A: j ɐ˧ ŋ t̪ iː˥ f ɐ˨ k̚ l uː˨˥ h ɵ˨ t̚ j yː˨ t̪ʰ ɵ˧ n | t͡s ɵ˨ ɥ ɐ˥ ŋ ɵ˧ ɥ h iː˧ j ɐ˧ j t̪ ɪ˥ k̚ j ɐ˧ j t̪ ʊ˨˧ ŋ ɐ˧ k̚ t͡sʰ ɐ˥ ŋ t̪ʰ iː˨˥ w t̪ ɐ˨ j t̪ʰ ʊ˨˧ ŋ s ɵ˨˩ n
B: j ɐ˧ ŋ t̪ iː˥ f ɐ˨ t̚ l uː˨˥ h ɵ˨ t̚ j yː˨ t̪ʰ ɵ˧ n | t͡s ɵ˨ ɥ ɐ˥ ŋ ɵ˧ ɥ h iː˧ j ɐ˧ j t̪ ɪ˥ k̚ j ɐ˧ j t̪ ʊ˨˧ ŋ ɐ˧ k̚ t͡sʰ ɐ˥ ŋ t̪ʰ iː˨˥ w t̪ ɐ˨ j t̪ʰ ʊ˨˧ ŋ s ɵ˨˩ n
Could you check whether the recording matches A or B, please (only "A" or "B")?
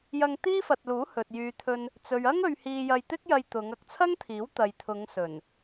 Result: B